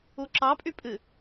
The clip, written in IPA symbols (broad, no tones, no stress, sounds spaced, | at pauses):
u ǁ ɑ pʼ y pʼ ɨ